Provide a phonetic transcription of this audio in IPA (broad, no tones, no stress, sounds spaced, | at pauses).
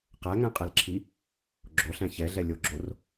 q æ ŋ æ̃ qʼ ɛ l ǁʰ i | ɡ͡ǁ o ɬ æ̃ ç ɛ ɮ ɛ lʲ o ɡ͡ǁ o r